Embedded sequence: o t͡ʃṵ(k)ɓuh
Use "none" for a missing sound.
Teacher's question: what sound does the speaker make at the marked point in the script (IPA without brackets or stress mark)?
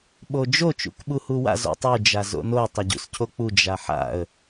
k